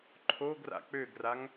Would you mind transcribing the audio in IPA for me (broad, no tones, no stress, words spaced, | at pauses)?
ǃʰoɡra̰ k͡pøɡraŋ